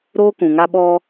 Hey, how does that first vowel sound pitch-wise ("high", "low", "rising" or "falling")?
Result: high